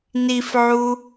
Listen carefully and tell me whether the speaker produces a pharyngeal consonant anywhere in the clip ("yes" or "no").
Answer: yes